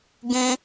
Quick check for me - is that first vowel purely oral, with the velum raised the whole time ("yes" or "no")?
no